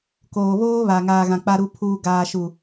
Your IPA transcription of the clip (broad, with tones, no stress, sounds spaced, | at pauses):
k oː˨ β oː˦ β a˨ ŋ aː˨ ɣ ã˨ k͡p a˨ ɾ u˨ pʰ uː˨ ɡ aː˨ ʃ u˨